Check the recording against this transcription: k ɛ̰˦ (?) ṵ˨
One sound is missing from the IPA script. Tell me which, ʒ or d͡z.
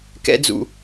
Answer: d͡z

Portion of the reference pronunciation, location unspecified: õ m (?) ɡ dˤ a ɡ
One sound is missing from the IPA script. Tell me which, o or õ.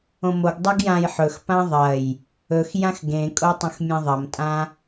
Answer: o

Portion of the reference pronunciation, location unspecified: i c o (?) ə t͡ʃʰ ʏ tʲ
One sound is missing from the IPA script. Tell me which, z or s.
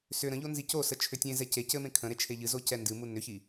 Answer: s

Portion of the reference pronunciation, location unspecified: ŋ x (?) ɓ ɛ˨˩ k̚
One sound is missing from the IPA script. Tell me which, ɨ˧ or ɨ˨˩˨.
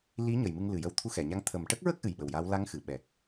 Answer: ɨ˨˩˨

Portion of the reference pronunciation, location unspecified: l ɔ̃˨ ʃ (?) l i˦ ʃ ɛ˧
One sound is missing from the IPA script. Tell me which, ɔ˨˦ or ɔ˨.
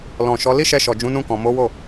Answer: ɔ˨˦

